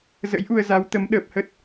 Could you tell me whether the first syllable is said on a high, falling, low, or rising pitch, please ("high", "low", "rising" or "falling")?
rising